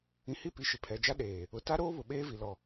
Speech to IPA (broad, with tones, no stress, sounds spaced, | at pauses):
ĩ˨ h i˦˨ p i˨ ʃ ɪ˨ pʰ ɛ˨ d͡ʒ a˦ ɗ eː˨ | ʊ˨ t a˦ ɾ oː˦ β ʊ˨ ɓ eː˦ v i˨ l ɔ˨